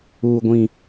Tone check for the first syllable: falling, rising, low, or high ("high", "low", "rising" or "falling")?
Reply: high